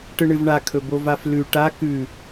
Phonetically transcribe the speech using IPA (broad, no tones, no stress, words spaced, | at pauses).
ʈɨɳɨvɳa kʰɵbovaflʉ ʈa kʉ